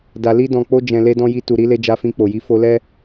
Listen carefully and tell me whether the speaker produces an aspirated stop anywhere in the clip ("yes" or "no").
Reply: no